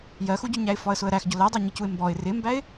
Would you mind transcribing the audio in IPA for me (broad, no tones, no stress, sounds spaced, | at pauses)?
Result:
j ɜ x u ɟ ʊ ɲ æ ɪ̯ f ɒ ə̯ s ʊ ə̯ ɾ æ x ɟ ʊ l æ dˤ ɜ ɲ ɪ c u ɪ̯ m b ɔ ɪ̯ r ɪ m b æ ɪ̯